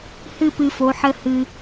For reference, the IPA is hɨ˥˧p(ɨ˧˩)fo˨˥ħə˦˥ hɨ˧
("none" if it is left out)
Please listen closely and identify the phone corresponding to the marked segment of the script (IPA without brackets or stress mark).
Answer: ɨ˧